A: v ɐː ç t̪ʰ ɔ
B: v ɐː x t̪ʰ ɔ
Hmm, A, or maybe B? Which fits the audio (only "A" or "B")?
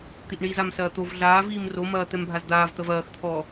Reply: B